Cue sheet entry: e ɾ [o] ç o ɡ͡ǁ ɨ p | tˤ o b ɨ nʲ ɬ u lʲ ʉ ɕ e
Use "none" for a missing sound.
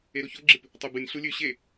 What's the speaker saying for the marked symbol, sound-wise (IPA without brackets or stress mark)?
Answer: o